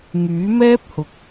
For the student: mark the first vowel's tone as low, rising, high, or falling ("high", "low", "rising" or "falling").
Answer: rising